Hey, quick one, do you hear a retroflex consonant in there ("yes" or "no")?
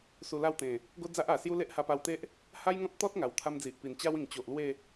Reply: no